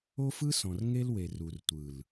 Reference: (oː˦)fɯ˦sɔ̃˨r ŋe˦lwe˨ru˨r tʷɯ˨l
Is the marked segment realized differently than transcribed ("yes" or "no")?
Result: yes